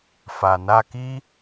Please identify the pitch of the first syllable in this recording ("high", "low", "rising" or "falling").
low